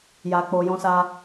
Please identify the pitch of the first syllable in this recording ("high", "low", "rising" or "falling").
low